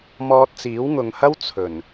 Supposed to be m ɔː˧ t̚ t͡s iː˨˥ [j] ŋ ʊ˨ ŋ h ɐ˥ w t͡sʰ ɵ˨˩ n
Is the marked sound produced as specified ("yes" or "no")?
no